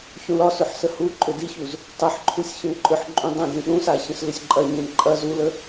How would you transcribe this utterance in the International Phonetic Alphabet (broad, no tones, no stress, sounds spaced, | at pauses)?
ç ũ l ɒ s ʏ ħ s ə h u ǃʼ ʏ d i ç u z | tˤ ə ħ ǃʰ u sʲ ç ə̃ ǃʼ ʏ ħ ǃʼ ũ dˤ ə̃ d ĩ ɗ ũ s a ç ə̃ s l ʏ sʲ ǃʼ ɐ ɲ ẽ ǃʼ ɐ z u l ə